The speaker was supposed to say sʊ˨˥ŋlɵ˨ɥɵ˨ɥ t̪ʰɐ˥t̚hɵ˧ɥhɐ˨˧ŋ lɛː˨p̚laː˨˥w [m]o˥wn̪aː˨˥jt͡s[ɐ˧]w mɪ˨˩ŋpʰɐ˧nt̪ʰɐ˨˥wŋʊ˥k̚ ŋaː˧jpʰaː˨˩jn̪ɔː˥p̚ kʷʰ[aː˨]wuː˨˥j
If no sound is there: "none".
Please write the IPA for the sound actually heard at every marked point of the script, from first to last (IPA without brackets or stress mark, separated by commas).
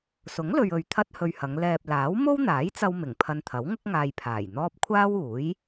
m, ɐ˧, aː˥